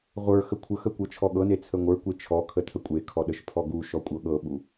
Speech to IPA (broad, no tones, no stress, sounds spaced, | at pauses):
ʁʷ ə˞ x ə kʷʰ ə˞ x ə kʷ ɤ t͡ʃʰ ɔ ɠ ɤ n e t͡sʰ ə ŋʷ ə˞ kʷ e t͡ʃʰ ɔ kʰ ə tʰ ə kʷʼ e kʰ ɔ ɗ ə ʃ pʰ ɔ ɡ u ʃ ɔ kʷʼ ɤ ɠ ɤ ɓ u